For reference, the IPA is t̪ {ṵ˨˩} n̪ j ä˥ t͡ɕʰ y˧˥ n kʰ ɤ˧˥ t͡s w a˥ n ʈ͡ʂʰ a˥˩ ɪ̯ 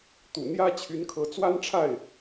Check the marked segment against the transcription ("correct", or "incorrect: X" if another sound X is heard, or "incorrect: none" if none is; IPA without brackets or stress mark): correct